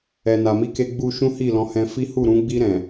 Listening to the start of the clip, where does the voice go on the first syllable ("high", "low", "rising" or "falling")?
low